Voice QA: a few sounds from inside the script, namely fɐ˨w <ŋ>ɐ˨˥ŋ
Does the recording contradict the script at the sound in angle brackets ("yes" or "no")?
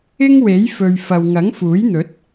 no